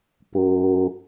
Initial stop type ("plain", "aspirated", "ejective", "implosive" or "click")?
plain